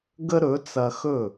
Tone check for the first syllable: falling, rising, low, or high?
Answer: high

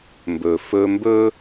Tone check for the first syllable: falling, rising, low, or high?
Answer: low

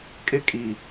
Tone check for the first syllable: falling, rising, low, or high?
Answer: high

